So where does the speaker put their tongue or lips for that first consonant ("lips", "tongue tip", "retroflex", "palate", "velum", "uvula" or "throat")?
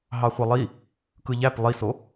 throat